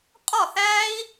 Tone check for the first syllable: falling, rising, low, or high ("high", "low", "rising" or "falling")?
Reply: falling